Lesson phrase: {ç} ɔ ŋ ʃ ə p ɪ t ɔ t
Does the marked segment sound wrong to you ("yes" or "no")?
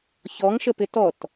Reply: no